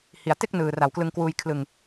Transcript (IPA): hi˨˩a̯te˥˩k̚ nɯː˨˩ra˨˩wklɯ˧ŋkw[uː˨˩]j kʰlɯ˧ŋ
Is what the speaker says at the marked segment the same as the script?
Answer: no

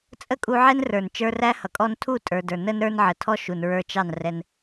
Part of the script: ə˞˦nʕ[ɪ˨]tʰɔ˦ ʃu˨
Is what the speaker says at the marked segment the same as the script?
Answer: no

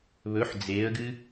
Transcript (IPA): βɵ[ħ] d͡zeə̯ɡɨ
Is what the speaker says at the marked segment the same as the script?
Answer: yes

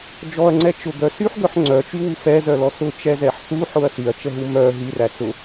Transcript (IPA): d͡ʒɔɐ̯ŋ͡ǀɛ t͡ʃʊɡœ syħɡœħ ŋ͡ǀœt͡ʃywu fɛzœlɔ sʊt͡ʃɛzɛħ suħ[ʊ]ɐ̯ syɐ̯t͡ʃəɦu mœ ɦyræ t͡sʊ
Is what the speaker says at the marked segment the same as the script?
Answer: yes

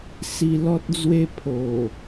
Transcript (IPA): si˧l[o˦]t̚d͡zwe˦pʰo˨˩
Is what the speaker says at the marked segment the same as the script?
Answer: no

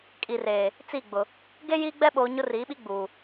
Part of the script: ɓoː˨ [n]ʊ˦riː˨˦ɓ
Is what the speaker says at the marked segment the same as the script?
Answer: no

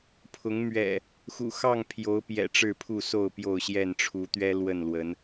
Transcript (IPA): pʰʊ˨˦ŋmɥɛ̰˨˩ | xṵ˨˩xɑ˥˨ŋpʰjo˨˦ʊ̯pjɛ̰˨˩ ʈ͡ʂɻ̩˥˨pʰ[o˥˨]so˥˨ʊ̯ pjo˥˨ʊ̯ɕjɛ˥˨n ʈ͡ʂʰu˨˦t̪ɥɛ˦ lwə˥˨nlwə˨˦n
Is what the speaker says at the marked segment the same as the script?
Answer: no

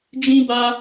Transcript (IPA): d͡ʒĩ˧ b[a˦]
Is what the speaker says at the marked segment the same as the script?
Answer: yes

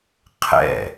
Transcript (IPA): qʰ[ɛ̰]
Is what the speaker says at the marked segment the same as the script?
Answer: yes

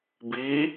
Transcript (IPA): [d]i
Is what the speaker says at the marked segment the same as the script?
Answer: no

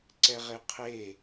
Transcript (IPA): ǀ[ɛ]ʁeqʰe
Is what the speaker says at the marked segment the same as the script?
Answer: yes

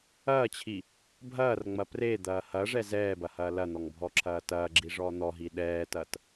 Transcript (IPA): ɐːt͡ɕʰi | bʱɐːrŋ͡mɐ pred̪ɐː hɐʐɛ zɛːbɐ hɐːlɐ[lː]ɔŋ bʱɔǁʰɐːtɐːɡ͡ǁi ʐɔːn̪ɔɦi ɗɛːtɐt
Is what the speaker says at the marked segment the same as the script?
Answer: no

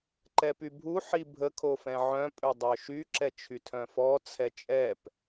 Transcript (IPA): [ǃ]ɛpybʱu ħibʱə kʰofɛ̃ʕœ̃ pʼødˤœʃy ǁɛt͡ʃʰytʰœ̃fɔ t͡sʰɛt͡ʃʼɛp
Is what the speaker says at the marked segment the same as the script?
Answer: yes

